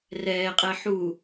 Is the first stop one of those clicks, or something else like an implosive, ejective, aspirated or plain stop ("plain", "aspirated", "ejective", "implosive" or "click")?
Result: ejective